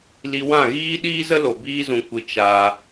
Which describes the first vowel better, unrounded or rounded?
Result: unrounded